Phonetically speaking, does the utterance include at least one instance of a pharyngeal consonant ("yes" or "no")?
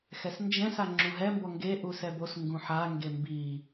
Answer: yes